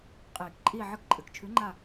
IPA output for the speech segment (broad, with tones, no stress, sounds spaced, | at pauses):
qʼ iː˨˩˦ k ǃʼ iː˦˨ ʕ ɨ˦˨ k ǃʼ ɨː˩ k t͡ʃʰ ʉ˨˥ ŋ͡ǃ a˦˨